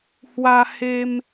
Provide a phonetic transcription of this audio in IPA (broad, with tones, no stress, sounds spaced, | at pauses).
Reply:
h w a˧ h e˧ m